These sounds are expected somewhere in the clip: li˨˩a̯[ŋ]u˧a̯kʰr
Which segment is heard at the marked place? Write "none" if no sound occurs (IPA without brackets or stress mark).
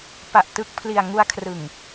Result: ŋ